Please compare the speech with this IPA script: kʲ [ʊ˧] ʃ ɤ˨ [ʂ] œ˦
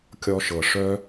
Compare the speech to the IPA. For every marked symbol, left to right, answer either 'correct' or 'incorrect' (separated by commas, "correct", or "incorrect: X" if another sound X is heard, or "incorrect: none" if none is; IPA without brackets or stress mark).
incorrect: ɔ˧, correct